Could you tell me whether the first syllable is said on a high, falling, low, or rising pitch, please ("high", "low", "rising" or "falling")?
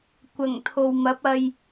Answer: low